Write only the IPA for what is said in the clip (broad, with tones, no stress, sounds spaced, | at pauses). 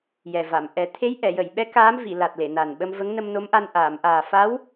j ɛ˨˩ v a˨˩˨ m ʔ ɛ˨˩˦ t̪ʰ e˧˥ j ʔ ɛ˨˩˨ j ə˨˩˨ j ɓ ɛ˧˥ k aː˧˥ m v i˨˩˨ l a˨˩ t̚ l e˨˩˨ n a˨˩ n ɓ ə˧ m v ə˧˥ ŋ n ə˧ m n o˧˥ m ʔ a˧ n ʔ aː˨˩˨ m ʔ aː˨˩ f a˧˥ w